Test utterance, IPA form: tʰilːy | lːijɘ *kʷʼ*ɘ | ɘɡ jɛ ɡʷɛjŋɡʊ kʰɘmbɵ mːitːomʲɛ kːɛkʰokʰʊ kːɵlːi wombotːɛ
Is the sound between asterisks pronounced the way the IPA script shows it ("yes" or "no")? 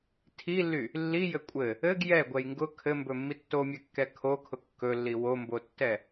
yes